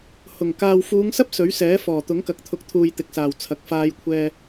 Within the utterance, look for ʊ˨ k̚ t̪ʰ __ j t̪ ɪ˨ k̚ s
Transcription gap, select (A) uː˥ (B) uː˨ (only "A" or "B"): B